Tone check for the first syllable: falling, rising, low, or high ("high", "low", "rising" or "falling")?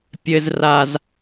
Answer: high